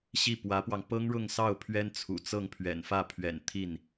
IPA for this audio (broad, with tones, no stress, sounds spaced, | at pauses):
ɕ i˥˩ p w ä˧˥ p w ɑ˧ ŋ p ɤ˥ ŋ ɻ ʊ˥˧ ŋ s ɑ˥˩ ʊ̯ pʰ ɥ ɛ˥ n t͡sʰ ṵ˨˩ t͡s ɤ˥˩ ŋ pʰ ɥ ɛ̰˨˩ n f ä˥˩ pʰ ɥ ɛ̰˨˩ n t̪ʰ i˥˩ n